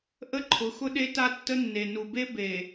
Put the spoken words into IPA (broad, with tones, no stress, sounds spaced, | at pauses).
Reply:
ʔ ə˦ ǃʰ ʊ˨˦ x ʊ˦ ɗ e˦ t a˦ tː ə˦ nː e˨ n u˨ b e˦ b e˨